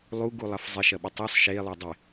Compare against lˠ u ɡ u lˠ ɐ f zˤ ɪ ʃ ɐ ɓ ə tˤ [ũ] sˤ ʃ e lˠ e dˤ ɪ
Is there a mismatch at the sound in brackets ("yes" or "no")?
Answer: yes